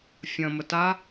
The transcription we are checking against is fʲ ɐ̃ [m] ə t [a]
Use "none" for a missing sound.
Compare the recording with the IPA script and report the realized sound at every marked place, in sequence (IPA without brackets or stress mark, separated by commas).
m, a